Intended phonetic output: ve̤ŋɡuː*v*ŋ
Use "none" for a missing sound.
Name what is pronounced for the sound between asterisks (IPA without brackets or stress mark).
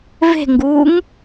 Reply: none